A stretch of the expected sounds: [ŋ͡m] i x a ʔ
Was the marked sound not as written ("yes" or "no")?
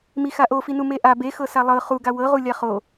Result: yes